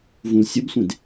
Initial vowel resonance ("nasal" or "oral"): nasal